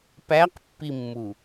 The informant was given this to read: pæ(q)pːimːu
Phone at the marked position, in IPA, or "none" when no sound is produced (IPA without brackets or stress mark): q